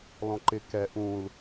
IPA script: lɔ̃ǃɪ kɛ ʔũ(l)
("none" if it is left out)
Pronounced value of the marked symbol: l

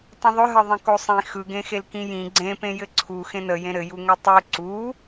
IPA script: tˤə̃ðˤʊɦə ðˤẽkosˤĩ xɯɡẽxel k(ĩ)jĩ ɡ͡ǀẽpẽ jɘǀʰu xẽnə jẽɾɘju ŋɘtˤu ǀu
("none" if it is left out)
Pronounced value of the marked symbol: ĩ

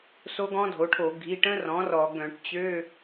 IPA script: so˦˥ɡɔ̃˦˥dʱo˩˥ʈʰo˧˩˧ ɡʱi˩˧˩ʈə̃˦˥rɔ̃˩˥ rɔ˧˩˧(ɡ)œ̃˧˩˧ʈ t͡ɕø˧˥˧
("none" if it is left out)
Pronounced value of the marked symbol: ɡ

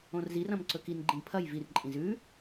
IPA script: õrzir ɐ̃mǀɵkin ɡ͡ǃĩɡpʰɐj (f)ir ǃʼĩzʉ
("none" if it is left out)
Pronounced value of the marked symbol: v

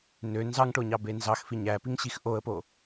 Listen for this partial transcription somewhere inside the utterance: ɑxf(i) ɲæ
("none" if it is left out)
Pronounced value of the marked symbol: i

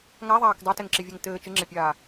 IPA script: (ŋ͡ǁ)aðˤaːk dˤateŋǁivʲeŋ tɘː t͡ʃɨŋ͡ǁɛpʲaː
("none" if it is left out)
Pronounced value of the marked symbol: ŋ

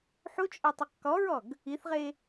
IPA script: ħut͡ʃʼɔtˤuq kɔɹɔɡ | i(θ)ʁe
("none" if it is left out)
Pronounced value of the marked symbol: θ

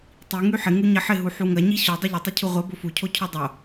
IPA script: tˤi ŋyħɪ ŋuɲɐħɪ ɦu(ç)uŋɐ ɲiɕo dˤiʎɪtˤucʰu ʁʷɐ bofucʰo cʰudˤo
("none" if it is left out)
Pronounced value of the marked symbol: ħ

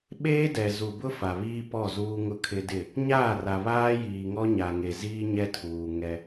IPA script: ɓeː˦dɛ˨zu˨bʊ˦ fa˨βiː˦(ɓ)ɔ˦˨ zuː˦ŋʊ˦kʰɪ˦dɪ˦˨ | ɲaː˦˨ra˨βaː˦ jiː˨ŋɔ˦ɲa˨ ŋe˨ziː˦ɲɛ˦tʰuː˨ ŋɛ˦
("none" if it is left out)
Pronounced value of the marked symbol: p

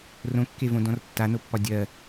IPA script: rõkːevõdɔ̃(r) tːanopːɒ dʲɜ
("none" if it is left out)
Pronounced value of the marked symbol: r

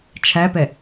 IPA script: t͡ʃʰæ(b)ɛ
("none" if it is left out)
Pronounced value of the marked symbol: p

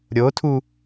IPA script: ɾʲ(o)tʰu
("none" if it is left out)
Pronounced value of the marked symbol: o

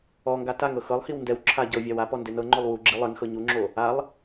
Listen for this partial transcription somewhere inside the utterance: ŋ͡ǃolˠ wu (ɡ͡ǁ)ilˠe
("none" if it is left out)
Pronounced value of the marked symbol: ɡ͡ǁ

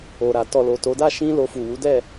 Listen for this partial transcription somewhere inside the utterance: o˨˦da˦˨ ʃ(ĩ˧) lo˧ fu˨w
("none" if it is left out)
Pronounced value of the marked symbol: ĩ˧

